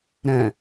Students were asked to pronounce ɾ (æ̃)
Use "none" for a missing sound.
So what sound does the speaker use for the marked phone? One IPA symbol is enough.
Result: æ̃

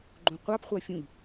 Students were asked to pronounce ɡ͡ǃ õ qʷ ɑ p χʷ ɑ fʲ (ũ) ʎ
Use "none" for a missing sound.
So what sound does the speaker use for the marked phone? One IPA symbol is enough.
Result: ũ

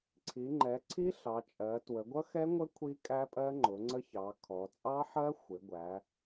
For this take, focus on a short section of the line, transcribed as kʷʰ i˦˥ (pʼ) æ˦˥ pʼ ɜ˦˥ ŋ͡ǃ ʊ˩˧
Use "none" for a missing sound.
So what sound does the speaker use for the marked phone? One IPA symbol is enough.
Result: kʼ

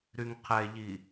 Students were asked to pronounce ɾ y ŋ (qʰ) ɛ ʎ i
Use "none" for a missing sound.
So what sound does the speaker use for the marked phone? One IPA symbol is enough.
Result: qʰ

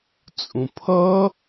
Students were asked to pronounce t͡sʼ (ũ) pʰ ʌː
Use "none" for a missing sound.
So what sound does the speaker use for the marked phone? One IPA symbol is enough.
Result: ũ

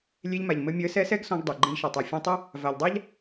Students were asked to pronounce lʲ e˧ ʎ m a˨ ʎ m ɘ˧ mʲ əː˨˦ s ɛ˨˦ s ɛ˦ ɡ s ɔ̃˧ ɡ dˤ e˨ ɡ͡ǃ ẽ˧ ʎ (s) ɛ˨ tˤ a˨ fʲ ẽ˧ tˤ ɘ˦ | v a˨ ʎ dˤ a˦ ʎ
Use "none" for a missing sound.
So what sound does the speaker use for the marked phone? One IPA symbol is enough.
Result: ʃ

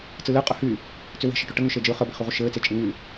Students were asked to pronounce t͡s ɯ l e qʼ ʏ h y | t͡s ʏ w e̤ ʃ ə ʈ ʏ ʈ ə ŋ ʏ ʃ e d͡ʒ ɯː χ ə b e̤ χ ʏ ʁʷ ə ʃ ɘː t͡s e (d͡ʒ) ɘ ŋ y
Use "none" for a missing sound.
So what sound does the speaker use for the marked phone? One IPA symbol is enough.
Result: t͡ʃʼ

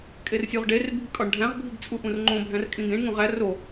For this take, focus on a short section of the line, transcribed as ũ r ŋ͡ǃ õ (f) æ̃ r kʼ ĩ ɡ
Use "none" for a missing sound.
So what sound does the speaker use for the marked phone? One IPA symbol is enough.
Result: bʱ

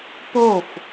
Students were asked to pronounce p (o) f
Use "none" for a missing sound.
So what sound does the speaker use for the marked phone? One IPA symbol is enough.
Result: o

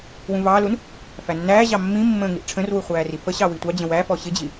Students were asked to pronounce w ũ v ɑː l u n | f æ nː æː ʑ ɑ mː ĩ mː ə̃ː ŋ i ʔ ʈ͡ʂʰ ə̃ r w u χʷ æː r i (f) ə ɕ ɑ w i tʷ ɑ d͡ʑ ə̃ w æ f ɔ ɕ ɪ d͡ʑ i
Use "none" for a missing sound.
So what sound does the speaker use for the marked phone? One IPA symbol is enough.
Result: f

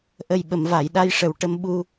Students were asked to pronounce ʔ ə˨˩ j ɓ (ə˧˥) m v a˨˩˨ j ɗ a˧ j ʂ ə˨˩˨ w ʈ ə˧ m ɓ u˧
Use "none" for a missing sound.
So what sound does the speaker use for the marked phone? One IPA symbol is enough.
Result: ə˨˩˨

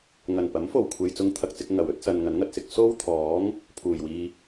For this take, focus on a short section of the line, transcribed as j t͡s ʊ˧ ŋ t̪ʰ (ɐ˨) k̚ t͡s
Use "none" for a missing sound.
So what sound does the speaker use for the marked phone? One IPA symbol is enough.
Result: ɐ˨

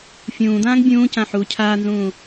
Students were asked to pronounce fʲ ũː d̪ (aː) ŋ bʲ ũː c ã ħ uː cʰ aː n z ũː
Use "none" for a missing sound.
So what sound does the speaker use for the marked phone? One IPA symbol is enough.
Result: ãː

